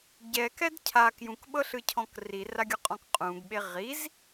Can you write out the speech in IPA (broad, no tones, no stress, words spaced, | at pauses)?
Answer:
ɟɛkɛd cʰa kjũkɓɤɬɯcʰɔ̃k riraɡʲɔqʼɔ̃k qʼũɡɓe ʁiz